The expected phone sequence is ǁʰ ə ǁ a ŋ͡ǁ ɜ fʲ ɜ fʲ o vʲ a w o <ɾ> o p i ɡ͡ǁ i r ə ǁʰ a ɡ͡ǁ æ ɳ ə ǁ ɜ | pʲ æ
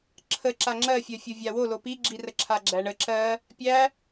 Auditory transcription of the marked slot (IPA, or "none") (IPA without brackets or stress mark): l